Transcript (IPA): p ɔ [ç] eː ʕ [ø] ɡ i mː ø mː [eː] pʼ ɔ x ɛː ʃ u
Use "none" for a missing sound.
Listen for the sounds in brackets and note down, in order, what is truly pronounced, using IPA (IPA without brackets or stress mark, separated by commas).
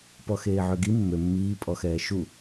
x, ø, iː